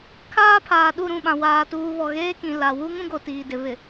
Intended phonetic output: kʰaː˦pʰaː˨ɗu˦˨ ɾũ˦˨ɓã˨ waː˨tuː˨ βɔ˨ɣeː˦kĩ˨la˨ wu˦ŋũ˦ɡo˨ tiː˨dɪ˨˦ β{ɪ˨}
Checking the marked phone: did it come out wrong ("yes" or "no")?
no